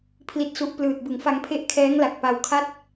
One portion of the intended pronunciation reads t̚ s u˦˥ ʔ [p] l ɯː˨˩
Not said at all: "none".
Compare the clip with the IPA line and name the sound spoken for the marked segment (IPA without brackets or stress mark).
p